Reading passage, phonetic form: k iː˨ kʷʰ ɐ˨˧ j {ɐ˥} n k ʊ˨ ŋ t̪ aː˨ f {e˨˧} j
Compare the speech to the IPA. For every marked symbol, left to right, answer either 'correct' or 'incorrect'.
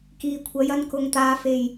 incorrect, incorrect

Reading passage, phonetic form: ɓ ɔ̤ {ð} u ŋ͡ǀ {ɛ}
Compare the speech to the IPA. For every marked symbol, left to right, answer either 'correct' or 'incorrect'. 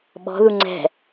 correct, incorrect

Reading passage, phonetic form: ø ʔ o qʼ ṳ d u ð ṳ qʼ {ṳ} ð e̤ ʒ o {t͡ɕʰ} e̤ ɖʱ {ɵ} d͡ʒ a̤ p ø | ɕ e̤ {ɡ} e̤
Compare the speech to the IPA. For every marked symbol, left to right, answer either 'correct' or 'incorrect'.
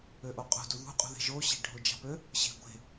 correct, incorrect, incorrect, incorrect

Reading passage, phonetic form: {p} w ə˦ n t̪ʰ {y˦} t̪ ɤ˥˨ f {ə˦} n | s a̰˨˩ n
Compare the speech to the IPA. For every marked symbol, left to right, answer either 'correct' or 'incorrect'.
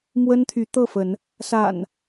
incorrect, incorrect, incorrect

